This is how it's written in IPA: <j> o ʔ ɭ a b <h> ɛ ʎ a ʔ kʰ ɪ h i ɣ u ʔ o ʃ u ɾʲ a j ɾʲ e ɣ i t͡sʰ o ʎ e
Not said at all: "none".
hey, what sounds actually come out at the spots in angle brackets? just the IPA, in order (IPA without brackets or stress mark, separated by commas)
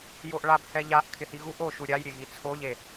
j, h